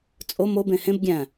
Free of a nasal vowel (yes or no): no